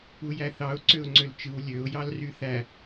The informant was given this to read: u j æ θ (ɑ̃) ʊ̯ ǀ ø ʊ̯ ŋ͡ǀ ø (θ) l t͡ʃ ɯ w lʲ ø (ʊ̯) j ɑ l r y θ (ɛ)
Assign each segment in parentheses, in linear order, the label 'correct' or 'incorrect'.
incorrect, incorrect, correct, incorrect

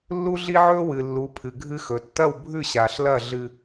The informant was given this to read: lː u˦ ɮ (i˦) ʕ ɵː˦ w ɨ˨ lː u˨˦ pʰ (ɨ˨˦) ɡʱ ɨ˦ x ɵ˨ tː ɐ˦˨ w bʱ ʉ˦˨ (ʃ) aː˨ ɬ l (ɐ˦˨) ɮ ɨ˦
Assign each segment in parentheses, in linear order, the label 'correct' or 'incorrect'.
correct, incorrect, incorrect, correct

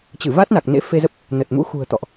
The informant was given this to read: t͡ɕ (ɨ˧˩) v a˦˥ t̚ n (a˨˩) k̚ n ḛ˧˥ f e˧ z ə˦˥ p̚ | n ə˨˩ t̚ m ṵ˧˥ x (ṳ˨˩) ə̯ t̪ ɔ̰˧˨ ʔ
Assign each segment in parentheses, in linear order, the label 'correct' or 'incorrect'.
correct, correct, correct

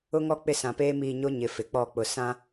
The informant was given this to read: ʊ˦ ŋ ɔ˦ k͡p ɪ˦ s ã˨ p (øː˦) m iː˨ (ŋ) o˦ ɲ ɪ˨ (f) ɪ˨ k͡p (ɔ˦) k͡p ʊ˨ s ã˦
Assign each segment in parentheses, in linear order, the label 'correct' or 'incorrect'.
incorrect, incorrect, correct, incorrect

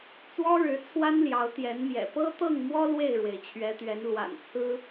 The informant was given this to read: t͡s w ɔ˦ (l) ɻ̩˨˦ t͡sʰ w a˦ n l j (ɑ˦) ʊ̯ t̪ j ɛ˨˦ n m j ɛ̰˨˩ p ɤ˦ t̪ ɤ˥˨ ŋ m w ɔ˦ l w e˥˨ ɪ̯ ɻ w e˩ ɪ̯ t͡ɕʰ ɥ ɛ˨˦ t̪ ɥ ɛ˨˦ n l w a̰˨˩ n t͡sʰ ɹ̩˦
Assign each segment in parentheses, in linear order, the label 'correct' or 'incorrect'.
incorrect, incorrect

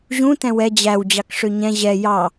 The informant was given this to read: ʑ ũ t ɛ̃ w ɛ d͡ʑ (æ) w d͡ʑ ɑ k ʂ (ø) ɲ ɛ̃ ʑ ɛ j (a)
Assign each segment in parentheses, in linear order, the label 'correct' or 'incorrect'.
correct, correct, incorrect

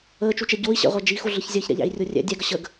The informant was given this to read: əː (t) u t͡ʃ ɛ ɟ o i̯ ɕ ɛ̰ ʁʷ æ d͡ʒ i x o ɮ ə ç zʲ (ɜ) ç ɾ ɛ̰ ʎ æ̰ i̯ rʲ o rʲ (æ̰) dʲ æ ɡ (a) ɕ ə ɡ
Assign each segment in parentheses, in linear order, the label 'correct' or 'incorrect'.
incorrect, correct, incorrect, incorrect

